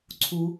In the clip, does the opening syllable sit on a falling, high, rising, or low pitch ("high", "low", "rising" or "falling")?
low